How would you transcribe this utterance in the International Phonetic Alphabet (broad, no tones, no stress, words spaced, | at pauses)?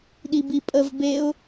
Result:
ɗibipʼəv beʊ̯